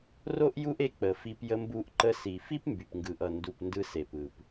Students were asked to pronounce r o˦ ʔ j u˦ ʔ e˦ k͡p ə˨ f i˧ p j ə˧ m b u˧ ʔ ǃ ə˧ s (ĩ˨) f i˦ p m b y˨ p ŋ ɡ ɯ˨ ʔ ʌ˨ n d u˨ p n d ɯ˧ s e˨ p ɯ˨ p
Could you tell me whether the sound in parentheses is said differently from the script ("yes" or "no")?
yes